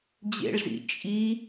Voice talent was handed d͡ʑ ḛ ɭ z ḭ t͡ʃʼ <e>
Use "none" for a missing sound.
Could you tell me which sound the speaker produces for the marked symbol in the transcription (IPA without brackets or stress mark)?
i